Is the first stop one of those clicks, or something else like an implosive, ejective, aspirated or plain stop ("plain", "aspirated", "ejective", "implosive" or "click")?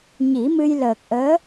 plain